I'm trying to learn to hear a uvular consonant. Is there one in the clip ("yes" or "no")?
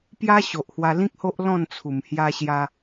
no